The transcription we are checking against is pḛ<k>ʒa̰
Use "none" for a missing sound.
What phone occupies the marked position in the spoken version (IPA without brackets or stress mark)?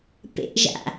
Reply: ʔ